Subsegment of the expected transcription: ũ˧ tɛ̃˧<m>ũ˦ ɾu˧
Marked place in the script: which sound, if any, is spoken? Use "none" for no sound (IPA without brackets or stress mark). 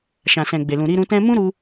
m